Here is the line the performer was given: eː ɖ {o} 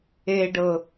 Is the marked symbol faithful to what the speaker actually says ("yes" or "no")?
no